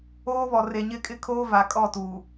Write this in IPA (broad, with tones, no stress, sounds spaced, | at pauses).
oː˦ β ɔ˨ r e˨ ɲ ɪ˦˨ kʼ ɪ˦ kʰ oː˦ v a˨ kʼ ɔ˦˨ t uː˨